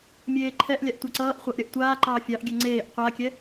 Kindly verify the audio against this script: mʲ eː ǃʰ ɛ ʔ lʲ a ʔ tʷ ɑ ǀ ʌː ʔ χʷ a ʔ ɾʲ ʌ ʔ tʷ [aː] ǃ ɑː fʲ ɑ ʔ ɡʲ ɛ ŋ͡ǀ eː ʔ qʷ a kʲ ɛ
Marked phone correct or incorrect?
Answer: correct